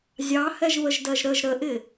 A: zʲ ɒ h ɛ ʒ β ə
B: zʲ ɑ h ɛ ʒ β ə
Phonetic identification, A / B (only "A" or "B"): B